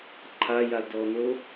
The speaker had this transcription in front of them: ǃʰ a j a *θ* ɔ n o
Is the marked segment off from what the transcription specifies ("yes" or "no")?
yes